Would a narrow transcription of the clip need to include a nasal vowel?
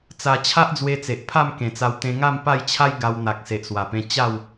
yes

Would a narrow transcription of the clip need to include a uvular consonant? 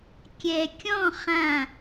yes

